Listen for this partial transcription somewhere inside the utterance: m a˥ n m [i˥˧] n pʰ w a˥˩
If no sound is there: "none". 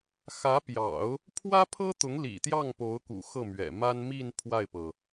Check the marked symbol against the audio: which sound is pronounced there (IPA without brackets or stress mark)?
i˥˧